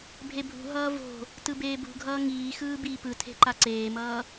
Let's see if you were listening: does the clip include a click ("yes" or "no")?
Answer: yes